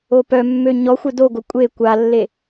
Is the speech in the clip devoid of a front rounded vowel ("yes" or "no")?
no